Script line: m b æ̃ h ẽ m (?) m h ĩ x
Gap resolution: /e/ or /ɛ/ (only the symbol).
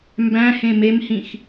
e